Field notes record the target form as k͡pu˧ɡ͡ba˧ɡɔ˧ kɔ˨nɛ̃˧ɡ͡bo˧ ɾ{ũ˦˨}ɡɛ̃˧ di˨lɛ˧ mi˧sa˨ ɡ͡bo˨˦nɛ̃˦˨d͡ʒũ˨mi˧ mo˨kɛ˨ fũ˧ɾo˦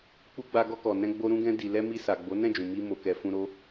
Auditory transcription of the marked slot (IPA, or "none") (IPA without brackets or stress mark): ũ˧